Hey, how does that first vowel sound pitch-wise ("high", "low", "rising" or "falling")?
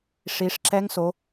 rising